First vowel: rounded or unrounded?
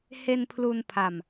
unrounded